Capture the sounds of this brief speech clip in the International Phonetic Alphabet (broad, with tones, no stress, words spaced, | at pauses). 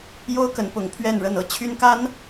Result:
jo˥ʊ̯kə˧˥n pʊ˧˥ŋ pʰɥɛ˥˧nɻə˥˧nɤ˥˩ t͡ɕʰy˥nka˥n